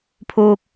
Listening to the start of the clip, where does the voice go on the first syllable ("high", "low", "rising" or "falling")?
high